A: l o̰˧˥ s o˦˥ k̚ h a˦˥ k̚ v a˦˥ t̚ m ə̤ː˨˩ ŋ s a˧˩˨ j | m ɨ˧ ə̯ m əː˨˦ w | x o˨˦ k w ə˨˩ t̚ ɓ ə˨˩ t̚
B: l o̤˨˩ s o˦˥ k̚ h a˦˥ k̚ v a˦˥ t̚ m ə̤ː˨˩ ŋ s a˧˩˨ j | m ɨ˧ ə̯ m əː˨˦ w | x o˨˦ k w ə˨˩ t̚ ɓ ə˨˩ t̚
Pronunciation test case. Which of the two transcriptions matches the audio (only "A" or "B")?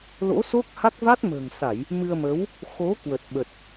A